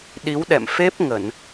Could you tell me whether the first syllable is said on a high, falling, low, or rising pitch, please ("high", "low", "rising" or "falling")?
rising